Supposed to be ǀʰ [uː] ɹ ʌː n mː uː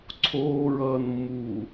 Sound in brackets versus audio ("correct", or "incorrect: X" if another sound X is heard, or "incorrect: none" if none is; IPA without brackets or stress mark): incorrect: oː